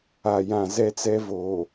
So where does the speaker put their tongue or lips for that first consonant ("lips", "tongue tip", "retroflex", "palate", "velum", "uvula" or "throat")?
palate